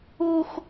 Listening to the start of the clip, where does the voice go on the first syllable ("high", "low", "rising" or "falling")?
high